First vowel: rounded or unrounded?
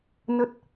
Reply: unrounded